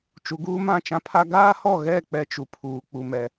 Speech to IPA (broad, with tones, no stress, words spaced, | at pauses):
t͡ʃu˨ɡuː˦mã˦˨ t͡ʃã˦pʰa˦ ɡaː˦hɔ˦˨ɣɛ˦˨ k͡pɛ˦t͡ʃu˨pʰuː˨ k͡pu˨mɛ˨